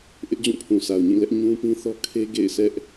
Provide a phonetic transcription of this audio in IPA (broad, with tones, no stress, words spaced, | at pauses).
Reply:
ʔɪ˦ʔd͡ʑũ˦˨pʰũ˨ sʰa˨ʊ̯ɲĩ˦˨lɛ˦ʔ ɲũ˦pĩ˦θɔ˦ kʰe˦ ɡḛ˦˨ɪ̯sɛ˦ʔ